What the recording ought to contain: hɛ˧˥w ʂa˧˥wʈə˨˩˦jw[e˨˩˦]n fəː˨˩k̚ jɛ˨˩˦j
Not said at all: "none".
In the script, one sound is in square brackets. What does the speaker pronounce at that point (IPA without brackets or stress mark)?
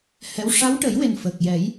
e˨˩